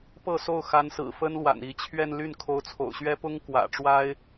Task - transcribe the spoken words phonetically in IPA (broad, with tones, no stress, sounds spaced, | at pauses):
p ɤ˥˧ s o˥˩ ʊ̯ x a˧˥ n s ɹ̩˨˩ f ə˥ n l w a̰˨˩ n i˧˥ t͡ɕʰ ɥ ɛ˥˧ n l y˥˩ n kʰ o˧˥ ʊ̯ t͡sʰ o̰˨˩ ʊ̯ ɕ ɥ ɛ˥ p ʊ˥ ŋ k w ä̰˨˩ ʈ͡ʂ w a˥ ɪ̯